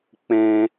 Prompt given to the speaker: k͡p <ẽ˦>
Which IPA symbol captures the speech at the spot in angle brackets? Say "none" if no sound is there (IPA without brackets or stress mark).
ẽ˦